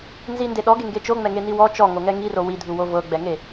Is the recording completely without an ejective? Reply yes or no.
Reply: yes